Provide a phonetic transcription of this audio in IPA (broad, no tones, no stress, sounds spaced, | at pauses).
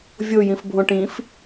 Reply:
vʲ o j ĩ f bʱ õ ʈ ĩ f